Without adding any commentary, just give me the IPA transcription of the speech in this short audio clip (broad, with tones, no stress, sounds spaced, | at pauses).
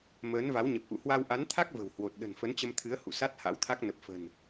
m əː˨˦ n v a˨˦ w ɲ ə˨˩ p̚ ʔ ṵ˧˨ h w a˧ w ʔ a˨˦ n t̪ʰ a˦˥ k̚ v ə̤˨˩ w h w o˨˩ t̚ ɗ ə̤˨˩ n f ə˨˦ n t͡ɕ ə˧ m t̪ʰ ɨ˨˦ ə̯ h ṵ˧˨ s a˦˥ t̚ h a̰˧˥ w t̪ʰ a˦˥ k̚ n ə˨˩ p̚ f ə̤˨˩ n